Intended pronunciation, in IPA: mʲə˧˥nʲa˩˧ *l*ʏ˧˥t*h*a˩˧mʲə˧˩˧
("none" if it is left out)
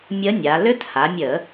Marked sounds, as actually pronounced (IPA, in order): l, h

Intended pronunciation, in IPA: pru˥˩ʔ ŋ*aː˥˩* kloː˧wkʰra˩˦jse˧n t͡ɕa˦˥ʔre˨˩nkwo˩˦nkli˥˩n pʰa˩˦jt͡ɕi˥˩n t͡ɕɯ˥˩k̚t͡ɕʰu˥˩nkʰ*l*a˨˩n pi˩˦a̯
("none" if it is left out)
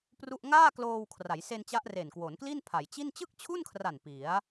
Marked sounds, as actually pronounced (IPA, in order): aː˥˩, r

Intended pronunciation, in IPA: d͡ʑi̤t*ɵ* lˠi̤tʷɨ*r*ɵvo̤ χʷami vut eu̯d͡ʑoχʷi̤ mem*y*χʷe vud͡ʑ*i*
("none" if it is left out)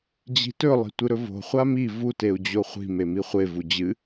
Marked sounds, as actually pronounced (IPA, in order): ɵ, ɾ, i, ɨ

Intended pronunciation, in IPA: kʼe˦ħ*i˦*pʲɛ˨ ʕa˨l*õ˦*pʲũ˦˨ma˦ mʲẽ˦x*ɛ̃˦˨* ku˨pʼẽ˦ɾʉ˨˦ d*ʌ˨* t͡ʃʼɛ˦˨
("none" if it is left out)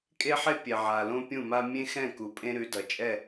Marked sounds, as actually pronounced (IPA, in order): e˦, õ˦, ɛ̃˦˨, ʌ˨

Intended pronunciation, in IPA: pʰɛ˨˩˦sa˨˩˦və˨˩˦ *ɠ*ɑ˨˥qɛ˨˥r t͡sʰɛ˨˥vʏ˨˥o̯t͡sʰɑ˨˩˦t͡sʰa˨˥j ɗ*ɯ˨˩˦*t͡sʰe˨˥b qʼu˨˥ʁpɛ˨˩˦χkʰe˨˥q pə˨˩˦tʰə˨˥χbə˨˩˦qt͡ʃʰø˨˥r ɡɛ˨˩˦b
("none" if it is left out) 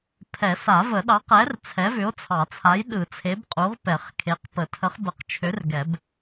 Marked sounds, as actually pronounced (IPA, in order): ɗ, ɯ˨˩˦

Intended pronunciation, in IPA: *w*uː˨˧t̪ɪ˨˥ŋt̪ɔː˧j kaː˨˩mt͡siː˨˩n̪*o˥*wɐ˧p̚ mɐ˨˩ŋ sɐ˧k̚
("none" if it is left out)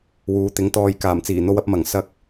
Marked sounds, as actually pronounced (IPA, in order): w, o˧

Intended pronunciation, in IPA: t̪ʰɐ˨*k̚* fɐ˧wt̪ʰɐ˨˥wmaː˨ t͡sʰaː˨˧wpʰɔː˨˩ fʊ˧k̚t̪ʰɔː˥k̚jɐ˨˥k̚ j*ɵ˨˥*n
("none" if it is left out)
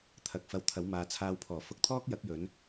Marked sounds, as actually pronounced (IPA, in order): k̚, ɵ˨˥

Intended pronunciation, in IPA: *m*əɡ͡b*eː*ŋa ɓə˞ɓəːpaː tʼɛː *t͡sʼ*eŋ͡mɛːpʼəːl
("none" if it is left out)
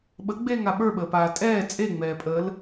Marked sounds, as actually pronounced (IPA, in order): ɓ, eː, t͡sʼ

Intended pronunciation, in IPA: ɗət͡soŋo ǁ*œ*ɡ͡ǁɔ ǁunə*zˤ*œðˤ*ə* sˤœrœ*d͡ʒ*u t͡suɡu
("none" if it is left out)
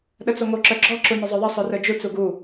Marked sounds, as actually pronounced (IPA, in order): œ, zˤ, ə, d͡ʒ

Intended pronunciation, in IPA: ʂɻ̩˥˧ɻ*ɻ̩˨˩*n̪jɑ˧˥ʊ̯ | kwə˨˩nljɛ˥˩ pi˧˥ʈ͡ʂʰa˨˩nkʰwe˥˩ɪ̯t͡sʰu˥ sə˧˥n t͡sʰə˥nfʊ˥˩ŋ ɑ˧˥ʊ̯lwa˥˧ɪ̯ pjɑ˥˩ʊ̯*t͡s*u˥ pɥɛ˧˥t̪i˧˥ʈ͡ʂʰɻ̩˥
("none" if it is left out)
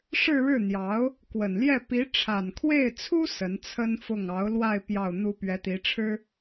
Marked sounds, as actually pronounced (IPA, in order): ɻ̩˥˩, n̪

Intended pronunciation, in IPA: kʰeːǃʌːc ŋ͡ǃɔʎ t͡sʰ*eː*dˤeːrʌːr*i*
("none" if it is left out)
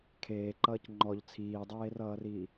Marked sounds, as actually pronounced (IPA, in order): iː, iː

